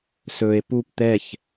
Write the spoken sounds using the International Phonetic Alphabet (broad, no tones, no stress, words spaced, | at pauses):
sɵe̯ pup t̪ɛç